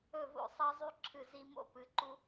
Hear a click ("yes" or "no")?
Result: yes